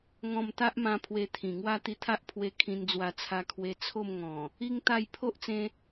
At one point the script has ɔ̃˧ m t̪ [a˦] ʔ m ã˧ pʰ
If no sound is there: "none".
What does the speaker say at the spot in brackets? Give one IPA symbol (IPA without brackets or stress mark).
a˦